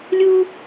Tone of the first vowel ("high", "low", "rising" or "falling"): high